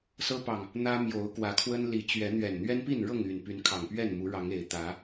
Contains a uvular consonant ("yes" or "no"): no